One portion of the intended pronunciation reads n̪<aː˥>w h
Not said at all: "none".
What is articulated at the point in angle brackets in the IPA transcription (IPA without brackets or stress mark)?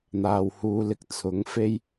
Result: aː˨